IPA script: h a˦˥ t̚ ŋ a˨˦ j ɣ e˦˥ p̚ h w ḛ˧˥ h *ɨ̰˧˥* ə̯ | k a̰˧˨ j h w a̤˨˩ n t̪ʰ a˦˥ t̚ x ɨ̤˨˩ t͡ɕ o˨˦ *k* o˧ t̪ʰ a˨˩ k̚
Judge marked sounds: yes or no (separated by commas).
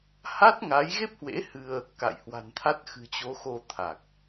no, no